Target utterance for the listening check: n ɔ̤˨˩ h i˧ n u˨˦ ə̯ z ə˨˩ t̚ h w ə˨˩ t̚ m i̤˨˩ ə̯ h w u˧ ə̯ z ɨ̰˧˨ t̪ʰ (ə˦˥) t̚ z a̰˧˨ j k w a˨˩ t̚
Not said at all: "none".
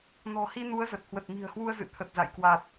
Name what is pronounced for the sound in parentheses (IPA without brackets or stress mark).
ə˨˩